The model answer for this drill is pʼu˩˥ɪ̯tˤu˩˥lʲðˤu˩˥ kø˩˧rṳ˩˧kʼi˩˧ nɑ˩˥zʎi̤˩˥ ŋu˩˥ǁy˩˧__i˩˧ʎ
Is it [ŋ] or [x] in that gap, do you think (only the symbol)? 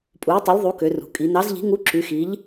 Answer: x